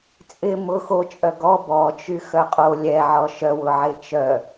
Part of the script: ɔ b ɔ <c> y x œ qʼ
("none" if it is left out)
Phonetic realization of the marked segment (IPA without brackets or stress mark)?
t͡ʃ